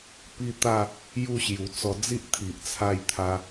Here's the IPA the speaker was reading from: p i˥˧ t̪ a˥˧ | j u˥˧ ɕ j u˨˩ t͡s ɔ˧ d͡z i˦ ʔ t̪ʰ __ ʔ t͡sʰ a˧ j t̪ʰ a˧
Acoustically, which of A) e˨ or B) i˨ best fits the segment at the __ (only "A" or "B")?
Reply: B